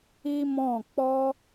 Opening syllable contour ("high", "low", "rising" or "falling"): high